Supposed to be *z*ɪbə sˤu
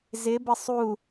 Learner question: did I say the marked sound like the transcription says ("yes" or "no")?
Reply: yes